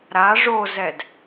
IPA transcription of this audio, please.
ɾ a ʐ o z ɛ d

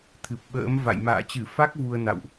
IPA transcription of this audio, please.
t̪ʰ ɨ˨˩ p̚ ɓ ə̰ː˧˥ m v a̰˧˨ j m a̰ː˧˨ t͡ɕ ɨ˧˩ f a˦˥ k̚ v u˧ ə̯ n a̰˧˨ w ʔ

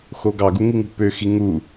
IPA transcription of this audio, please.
x o ɡ ɑ ɡ u ŋ i ŋ ṳ p ø x i ŋ u

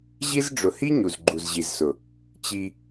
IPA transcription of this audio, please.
ʑ i˦ z ɖ͡ʐ ʊ˨ h i˦ ɲ u˨ z ɡ͡ǃ u˨ z ʑ i˨ z s ʊ˨ | t͡ɕ i˧

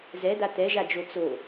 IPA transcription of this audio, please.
z ɛ d̪ a t̪ ɛ ʒ a d͡ʒ o t͡s o

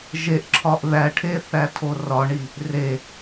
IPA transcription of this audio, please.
ʒ e ʔ ǁʰ ɒ ʔ ð æ ʈʰ e θ æ tʰ o r ɒ ɳ i | r e

